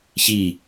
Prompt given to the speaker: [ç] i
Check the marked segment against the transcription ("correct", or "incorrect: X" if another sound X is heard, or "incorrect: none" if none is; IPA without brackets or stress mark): correct